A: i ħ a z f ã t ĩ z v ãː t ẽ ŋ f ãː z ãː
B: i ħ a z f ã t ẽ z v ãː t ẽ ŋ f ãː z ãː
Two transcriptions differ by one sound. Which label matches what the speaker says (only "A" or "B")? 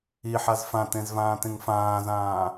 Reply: B